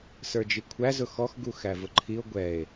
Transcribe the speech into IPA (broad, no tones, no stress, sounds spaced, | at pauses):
s ə˞ d͡ʒ i kʷʰ æ z ʊ x ɔ x ɡ u x æ v ʊ ǃʰ i o̯ ɡʷ ɛ e̯